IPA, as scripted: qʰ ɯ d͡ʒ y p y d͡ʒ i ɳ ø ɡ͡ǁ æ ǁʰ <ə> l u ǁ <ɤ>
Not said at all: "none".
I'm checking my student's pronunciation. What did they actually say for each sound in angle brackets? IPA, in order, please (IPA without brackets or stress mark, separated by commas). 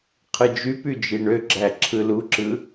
ɯ, ɯ